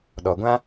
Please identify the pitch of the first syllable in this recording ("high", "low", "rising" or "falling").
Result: low